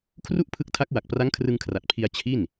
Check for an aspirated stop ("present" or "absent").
present